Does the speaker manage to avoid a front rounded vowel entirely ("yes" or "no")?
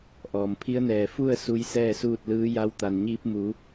yes